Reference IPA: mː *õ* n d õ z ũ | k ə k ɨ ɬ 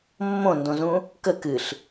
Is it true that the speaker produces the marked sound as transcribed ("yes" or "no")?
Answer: yes